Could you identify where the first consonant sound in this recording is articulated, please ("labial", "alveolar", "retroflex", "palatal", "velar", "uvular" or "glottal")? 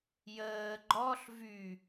palatal